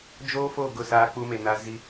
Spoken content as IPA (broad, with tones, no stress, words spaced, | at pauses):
d͡ʒoː˦ fo˦˨ ɡʊ˦˨saː˦k͡pu˦me˨ na˦ zi˦